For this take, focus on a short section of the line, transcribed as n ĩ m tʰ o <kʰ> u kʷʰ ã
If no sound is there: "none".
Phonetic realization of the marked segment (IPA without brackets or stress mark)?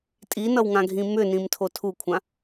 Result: tʰ